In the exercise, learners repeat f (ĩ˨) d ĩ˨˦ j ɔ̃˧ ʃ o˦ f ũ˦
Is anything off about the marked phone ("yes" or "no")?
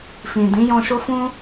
no